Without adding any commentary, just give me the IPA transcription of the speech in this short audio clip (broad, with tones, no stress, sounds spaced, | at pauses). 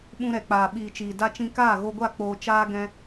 ɓ ũ˧ ɾ ɛ˨ k͡p aː˨ ɓ iː˨ t͡ʃ iː˨ d a˧ t͡ʃ ĩ˧ k aː˦˨ ɣ o˧ ɡʷ a˦˨ k͡p oː˧ t͡ʃ aː˧ ɡ ɛ̃˦